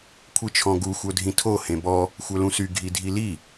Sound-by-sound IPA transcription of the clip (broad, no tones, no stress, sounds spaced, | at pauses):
kʷʰ i t͡ʃʰ ɔ̃ ɡ u xʷ œ dʱ ĩ tʰ o h ẽ b ɔ | xʷ œ l ũ s y ɡʱ i dʱ i l i